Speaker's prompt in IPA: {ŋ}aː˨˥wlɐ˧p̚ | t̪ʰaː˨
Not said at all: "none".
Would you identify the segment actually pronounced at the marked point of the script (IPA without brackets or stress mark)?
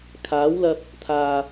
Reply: kʰ